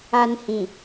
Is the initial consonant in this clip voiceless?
no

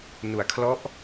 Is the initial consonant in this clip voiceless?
no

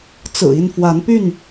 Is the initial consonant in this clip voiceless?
yes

